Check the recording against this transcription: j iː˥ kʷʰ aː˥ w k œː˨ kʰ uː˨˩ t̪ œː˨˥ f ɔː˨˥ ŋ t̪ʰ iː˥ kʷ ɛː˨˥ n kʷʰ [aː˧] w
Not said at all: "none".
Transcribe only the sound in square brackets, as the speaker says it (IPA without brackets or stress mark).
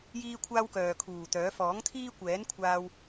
aː˧